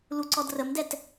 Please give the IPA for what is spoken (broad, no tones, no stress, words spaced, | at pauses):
luǀɔdrəmdɛt